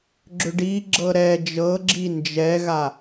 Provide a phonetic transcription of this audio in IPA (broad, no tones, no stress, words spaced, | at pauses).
ɡ͡ǁʏɖiɡ͡ǁɤ ɾɛ d͡ʒɤɡ͡ǁi nd͡ʒɛɣa